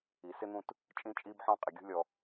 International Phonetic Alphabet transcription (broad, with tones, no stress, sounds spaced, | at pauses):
i˩ s ɪ˥ n̪ ũ˦ t | t͡ʃʼ ĩ˦ t͡ʃʼ i˦ b ħ ɔ̃˦ qʼ ɪ˩ ɡʲ ṳ˦ lʲ ɔ˨